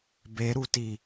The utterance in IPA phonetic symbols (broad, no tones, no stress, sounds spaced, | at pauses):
b e ɾ u t i